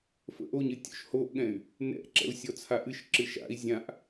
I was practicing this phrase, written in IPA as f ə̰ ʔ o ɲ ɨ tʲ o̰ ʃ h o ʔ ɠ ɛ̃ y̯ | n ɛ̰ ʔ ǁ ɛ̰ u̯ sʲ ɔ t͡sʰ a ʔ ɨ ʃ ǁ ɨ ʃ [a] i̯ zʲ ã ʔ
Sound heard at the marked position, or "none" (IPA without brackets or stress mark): a̰